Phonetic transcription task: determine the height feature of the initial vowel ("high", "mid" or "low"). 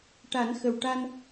low